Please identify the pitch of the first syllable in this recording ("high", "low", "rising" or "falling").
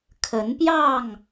rising